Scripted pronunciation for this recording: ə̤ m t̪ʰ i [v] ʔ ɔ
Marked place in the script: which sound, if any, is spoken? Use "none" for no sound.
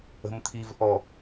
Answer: v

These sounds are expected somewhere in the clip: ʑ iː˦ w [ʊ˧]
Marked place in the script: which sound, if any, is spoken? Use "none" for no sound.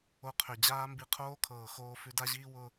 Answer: ʊ˧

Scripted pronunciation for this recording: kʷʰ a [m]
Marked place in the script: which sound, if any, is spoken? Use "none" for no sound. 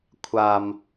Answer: m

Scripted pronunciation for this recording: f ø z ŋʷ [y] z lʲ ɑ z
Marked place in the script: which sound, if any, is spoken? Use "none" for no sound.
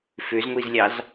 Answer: i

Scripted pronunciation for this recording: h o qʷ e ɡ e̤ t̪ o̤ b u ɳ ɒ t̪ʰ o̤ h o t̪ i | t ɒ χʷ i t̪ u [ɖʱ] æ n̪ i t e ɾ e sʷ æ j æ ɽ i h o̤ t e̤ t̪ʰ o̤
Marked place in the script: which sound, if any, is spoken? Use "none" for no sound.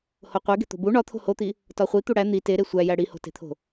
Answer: ɽ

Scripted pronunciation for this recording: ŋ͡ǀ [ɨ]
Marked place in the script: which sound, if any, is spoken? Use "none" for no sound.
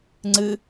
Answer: ɨ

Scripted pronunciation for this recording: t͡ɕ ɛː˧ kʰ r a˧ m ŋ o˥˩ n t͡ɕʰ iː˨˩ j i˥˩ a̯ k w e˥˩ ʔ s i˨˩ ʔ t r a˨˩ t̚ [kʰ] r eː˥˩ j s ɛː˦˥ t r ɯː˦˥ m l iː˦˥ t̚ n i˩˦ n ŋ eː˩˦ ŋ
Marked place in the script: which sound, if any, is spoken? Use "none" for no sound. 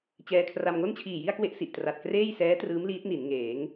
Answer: k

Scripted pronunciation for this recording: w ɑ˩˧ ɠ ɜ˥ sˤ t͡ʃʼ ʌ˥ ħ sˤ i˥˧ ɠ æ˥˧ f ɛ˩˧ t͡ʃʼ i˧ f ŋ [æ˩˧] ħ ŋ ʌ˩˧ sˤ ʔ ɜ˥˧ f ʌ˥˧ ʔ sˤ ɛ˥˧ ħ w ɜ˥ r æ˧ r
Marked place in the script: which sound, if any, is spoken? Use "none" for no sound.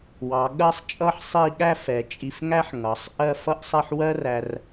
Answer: æ˥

